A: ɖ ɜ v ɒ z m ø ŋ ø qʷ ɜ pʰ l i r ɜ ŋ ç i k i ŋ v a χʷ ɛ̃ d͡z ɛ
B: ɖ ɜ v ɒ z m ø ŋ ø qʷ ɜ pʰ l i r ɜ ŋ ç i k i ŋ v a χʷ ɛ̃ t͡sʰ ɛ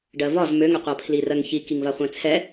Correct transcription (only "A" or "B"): B